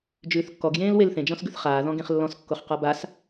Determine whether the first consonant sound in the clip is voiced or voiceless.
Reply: voiced